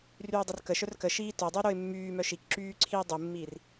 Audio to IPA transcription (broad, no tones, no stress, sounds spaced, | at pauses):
r yː dˤ ə r k ə ʃ œ r k ə ʃ iː t œ dˤ y ɾ o ɪ̯ mː yː m œ ʃ i k ǁ yː ǀʰ iː dˤ u mː iː r